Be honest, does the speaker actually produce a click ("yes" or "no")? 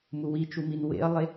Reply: no